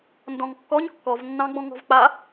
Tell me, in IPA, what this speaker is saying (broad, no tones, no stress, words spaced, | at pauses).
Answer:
ndɔ̃ŋkːɔɲ kːɔvnːɑ̃ɡ͡bɔ̃ ŋɔ̤vk͡pa